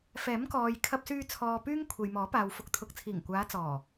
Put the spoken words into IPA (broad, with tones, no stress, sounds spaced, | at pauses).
f ɛː˨˥ m k ɔː˨ j kʰ ɐ˧ p̚ s yː˧ t͡sʰ ɔː˨ p yː˥ ŋ kʷʰ e˨ j m ɔː˨˥ p aː˨ w f ʊ˨˥ k̚ t̪ʰ ʊ˨ k̚ t͡sʰ iː˨˩ ŋ kʷ aː˨˧ t͡s ɔː˨˩